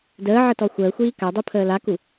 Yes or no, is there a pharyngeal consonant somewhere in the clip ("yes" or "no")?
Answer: yes